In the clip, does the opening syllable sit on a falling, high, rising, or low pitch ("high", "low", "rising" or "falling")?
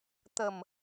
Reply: low